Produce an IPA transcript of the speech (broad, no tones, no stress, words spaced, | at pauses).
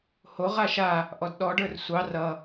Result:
hoʁa ʃa | ʔɔdɗɔɖə˞r sʷɑ rʌ